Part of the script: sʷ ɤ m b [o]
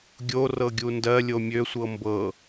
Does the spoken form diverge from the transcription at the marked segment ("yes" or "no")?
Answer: yes